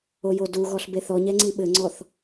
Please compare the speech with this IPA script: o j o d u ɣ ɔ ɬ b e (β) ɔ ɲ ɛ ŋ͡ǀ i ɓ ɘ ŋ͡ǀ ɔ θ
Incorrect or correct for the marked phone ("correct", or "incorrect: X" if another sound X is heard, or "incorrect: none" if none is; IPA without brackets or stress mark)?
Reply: incorrect: θ